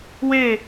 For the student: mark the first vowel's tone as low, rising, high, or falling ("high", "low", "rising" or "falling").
falling